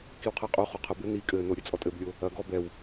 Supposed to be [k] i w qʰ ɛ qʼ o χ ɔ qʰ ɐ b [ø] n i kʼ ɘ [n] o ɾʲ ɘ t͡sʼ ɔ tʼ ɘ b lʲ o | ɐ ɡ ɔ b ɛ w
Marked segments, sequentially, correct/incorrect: correct, incorrect, correct

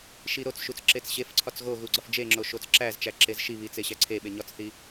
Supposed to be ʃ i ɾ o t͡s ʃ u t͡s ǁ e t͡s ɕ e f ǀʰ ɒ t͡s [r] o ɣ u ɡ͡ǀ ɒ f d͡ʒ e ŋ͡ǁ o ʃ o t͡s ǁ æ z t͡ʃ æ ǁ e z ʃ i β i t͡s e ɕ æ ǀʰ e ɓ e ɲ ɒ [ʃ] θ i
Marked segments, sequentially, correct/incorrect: incorrect, incorrect

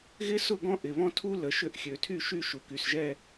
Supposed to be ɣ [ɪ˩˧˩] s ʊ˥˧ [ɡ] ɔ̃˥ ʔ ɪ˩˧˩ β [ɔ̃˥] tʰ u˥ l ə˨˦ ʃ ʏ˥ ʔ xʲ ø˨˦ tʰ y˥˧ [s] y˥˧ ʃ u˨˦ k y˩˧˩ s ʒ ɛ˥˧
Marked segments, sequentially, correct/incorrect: incorrect, correct, correct, incorrect

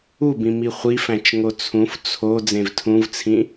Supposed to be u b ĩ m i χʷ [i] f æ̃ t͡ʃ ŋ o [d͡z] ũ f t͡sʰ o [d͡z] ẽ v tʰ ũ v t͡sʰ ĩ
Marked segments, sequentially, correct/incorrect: correct, incorrect, correct

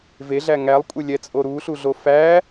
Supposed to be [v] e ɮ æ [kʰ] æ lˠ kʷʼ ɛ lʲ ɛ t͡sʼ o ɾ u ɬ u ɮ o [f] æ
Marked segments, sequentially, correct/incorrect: correct, incorrect, correct

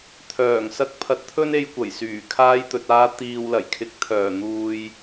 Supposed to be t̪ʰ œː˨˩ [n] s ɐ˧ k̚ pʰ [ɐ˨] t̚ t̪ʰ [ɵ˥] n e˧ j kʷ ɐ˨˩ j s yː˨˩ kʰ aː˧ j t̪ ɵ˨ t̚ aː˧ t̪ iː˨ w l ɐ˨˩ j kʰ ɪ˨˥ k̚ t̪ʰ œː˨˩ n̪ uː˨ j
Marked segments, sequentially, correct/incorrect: incorrect, incorrect, correct

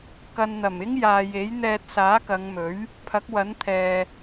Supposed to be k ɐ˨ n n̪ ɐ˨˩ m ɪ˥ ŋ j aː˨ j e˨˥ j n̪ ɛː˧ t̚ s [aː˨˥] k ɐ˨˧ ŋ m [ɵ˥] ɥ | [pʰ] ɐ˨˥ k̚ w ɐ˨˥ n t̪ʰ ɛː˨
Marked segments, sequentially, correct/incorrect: correct, incorrect, correct

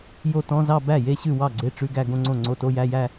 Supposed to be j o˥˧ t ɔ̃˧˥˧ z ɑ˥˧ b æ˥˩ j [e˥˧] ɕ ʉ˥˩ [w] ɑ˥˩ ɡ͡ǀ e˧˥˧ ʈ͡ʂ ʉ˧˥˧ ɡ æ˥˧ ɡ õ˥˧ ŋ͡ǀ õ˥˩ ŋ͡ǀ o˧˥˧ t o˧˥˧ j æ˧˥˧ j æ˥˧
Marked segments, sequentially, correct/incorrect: correct, correct

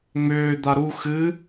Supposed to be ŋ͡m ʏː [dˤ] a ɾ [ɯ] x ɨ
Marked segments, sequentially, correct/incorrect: incorrect, incorrect

